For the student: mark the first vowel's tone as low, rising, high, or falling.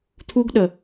high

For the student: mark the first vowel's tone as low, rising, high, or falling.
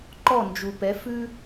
falling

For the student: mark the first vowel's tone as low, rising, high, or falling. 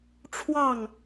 falling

